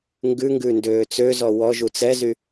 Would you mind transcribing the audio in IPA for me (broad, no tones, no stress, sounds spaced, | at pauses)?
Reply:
ŋ ɡ ʉ ŋ ɡ ʉ n d øː t͡s ø z ɔ w ɔ ʒ u t͡s ɛ z y